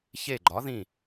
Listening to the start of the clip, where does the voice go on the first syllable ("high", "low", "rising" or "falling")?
falling